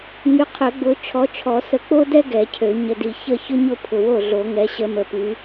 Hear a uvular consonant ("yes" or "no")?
yes